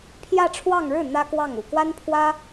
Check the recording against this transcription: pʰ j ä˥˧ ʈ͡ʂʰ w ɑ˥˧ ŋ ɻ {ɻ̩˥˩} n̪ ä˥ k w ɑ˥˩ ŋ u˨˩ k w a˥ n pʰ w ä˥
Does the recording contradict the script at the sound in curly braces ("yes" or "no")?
no